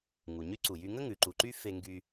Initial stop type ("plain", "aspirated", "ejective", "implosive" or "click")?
click